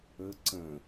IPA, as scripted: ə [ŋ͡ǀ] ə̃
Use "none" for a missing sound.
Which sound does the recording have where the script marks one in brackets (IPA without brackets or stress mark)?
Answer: ǀ